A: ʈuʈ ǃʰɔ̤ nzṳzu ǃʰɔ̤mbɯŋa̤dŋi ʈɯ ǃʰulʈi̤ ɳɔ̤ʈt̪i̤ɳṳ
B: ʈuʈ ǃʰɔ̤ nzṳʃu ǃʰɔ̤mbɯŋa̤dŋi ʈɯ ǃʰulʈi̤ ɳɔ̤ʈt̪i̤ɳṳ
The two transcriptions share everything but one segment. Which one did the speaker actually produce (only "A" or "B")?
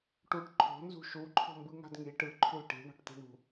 B